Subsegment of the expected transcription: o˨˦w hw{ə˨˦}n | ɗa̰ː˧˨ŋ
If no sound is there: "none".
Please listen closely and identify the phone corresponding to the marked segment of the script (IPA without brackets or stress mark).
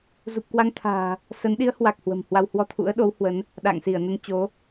ə˨˦